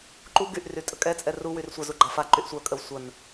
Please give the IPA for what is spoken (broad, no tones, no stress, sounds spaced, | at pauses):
ǃ u ɡ y ʔ r y tʼ ə kʼ ɛ t͡sʼ ɛ r u w y r sʷ ə z u ɡ͡ǃ a f a ǃ y ʔ sʷ œ kʼ ə w sʷ ə n